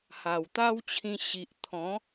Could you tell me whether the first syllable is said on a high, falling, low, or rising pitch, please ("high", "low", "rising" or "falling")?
low